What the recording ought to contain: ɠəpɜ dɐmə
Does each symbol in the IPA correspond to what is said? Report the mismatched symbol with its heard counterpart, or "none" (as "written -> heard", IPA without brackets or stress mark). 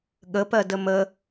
ɐ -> ə